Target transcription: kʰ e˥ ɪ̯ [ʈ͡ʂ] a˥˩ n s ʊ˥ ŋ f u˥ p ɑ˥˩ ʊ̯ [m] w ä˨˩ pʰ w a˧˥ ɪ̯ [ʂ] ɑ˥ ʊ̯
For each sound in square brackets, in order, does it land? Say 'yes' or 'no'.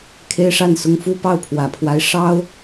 no, no, yes

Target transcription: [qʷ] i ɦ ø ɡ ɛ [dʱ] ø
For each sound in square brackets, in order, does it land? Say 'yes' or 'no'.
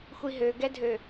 no, yes

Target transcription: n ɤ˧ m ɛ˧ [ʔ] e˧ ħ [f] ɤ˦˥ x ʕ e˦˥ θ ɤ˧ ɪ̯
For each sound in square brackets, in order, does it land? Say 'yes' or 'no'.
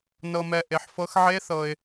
yes, yes

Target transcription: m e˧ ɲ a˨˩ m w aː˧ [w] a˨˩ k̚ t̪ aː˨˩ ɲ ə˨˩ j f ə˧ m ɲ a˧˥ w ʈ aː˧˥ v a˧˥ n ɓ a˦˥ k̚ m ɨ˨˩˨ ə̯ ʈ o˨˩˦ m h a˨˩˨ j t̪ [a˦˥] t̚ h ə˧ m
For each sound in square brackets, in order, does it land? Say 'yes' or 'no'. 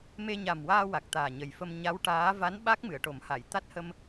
yes, yes

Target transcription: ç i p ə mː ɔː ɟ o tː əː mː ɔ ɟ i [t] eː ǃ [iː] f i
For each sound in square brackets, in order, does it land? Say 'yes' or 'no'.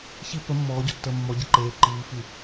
no, yes

